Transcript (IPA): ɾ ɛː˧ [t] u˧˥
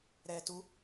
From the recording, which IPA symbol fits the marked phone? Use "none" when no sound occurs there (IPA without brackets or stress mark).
t